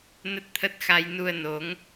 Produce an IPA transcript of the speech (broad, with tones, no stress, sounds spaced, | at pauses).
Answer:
n ə˦˥ t̚ t̪ʰ ə˦˥ t̚ x a˧ j n u˧ ə̯ n o˨˦ ŋ